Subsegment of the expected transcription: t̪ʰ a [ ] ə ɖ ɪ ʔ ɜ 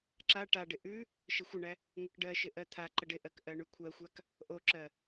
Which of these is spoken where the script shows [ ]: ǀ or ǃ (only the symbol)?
ǃ